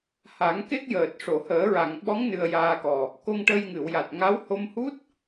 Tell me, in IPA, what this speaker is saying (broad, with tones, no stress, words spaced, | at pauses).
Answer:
ha˨˩˦ŋke˦˥k̚ jəː˨˩t̚ ʂo˨˩˨həː˨˩˦ɹa˨˩˨ŋ ɓɔ˧˥ŋ nɨ˧ə̯jaː˧kɔ˨˩ | ko˧ŋʈə˧jŋɨ˨˩˨wja˨˩t̚ ŋa˧˥w ho˧mhu˦˥t̚